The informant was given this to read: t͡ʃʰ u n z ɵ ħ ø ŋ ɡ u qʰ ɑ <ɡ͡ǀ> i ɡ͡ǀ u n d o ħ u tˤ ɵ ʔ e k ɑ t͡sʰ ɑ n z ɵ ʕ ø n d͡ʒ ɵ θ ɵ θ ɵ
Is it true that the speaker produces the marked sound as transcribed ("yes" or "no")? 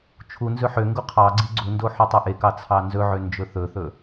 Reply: yes